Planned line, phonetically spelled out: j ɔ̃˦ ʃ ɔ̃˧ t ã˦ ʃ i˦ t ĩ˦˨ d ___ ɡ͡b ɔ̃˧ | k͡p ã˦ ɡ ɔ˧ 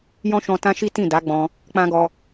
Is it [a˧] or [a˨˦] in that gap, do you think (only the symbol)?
a˨˦